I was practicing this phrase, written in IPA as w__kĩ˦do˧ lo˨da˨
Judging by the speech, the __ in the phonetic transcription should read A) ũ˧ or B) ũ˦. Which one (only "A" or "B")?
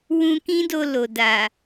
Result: A